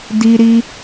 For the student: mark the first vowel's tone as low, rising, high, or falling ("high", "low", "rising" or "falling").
high